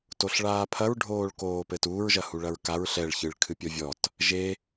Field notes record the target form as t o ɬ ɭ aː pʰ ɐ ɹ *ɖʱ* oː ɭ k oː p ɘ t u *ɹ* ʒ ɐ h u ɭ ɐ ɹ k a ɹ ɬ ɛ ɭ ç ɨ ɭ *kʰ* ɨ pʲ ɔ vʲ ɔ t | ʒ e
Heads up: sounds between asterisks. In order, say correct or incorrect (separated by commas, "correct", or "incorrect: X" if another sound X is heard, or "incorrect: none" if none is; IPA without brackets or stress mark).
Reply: correct, correct, correct